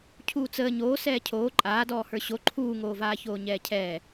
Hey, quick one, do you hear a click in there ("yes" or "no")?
yes